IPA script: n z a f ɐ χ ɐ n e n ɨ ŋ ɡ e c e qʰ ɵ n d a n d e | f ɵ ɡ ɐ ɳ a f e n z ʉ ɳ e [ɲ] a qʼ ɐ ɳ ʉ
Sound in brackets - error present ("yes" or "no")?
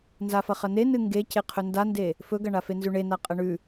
yes